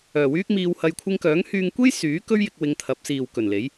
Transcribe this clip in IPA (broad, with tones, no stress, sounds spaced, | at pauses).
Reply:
œː˨ w yː˥ k̚ m iː˧ w h ɐ˧ j kʷʰ ɪ˧ ŋ k œː˨˥ ŋ h yː˧ ŋ kʷ e˥ j s yː˨˥ k ɵ˥ ɥ j ɪ˧ k̚ w ɪ˨˧ ŋ t̪ʰ ɐ˨˥ p̚ s iː˨ w k ɵ˨˩ n l e˨˥ j